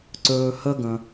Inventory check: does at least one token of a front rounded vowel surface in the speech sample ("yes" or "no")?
no